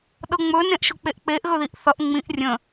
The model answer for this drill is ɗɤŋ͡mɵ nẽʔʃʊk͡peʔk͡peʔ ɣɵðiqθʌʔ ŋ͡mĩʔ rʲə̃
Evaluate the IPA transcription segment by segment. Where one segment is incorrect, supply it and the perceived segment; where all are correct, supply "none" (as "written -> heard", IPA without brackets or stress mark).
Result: q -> ʔ